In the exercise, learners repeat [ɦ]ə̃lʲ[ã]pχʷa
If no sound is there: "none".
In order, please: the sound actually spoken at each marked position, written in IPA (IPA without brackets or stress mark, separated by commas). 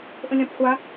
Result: ʔ, ã